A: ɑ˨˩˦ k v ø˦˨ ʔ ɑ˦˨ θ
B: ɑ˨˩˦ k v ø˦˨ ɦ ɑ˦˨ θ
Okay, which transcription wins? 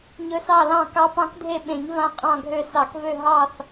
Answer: B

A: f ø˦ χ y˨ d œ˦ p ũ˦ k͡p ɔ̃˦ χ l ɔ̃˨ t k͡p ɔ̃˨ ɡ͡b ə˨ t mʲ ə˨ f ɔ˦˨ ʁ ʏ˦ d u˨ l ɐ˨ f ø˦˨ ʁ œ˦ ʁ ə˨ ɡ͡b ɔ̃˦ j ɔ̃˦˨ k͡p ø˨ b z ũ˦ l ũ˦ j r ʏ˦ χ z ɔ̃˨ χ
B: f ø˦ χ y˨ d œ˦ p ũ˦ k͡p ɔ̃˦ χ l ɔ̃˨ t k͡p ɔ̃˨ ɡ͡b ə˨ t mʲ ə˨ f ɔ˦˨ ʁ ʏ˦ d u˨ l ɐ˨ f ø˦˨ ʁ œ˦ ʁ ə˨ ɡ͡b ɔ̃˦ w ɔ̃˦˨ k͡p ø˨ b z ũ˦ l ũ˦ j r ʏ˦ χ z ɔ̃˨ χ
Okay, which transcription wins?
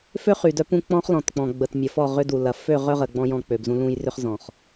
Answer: A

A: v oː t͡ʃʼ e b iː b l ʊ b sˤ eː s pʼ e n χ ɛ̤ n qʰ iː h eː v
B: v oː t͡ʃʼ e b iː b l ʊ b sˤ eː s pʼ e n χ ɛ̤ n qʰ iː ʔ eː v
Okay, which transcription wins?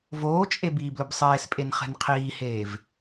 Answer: A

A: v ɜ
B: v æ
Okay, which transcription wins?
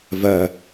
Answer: A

